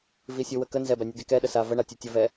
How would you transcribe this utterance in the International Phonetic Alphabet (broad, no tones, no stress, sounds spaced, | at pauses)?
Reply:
v i sʲ u w ə k ə n z ɛ b æ nʲ u d i k ɛ ɗ ə s a v ə ɳ a tʲ u tʲ ə v ɛ